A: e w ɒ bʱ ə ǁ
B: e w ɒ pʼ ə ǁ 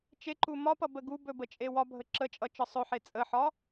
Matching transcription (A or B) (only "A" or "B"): A